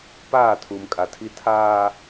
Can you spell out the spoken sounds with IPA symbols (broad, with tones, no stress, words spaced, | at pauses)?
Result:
paː˦˨ tʰuː˨mkʼa˨tʰi˦ tʰaː˦